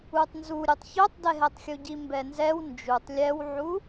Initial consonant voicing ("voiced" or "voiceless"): voiceless